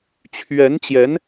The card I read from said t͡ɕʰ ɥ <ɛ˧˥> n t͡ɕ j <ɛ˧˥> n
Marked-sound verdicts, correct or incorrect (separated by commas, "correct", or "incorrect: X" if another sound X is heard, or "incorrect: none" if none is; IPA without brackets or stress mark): correct, correct